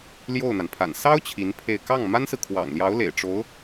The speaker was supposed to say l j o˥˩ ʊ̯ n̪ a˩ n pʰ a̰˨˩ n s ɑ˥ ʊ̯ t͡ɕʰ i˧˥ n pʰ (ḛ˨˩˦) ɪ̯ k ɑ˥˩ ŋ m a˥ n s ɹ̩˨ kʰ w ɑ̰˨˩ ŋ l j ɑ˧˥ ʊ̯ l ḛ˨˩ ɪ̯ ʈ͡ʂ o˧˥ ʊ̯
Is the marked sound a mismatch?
yes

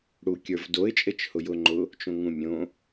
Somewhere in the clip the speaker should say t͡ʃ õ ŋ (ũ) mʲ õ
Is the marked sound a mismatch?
no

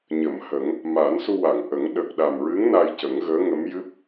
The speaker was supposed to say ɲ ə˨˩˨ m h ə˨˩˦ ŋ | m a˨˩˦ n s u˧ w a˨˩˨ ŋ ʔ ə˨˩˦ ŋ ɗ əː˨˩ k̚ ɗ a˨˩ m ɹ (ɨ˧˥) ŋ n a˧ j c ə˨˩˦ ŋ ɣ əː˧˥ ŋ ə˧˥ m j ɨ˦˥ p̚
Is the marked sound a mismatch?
no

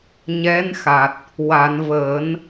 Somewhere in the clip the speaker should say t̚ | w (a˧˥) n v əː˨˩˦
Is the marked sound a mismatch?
yes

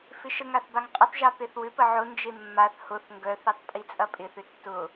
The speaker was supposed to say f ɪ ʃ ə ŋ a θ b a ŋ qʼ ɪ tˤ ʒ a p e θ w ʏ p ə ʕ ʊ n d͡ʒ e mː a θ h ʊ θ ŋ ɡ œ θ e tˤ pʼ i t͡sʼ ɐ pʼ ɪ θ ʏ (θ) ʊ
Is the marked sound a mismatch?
yes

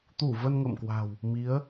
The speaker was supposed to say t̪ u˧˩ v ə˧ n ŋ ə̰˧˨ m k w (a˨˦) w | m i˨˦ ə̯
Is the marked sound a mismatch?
yes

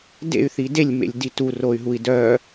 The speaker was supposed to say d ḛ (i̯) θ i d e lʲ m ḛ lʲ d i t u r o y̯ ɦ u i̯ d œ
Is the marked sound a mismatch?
yes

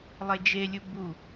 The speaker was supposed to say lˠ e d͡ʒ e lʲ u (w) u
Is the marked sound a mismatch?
yes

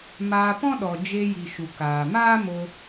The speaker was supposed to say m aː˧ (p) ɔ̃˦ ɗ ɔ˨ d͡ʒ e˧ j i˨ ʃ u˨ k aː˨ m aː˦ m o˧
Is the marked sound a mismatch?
no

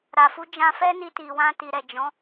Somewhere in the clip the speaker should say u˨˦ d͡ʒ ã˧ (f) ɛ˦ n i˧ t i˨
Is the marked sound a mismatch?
no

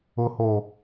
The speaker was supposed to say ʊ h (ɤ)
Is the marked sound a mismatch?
yes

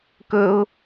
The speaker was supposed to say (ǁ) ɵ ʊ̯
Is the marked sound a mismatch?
yes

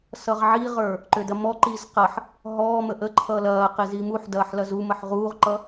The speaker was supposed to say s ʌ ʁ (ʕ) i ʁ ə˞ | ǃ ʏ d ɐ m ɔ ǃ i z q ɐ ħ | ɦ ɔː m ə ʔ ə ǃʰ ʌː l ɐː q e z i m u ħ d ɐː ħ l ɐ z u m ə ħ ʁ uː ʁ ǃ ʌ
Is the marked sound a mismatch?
no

